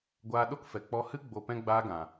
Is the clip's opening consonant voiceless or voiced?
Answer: voiced